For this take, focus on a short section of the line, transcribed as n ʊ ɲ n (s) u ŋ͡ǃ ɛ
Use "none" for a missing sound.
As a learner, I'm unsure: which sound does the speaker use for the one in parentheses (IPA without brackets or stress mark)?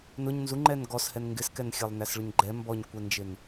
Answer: z